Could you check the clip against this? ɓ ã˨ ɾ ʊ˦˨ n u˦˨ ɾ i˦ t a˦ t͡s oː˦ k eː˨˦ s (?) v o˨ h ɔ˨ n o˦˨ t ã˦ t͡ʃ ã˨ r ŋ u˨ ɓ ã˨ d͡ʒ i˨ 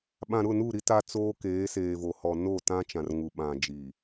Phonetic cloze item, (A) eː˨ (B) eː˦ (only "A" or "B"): A